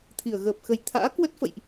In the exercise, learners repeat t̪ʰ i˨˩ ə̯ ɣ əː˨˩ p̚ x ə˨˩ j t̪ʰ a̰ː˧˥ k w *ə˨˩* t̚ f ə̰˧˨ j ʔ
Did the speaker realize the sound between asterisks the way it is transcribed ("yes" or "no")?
no